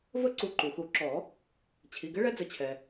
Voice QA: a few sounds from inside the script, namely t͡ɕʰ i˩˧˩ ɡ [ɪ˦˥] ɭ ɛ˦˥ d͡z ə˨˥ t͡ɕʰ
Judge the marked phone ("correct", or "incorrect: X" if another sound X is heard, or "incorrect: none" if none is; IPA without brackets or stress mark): correct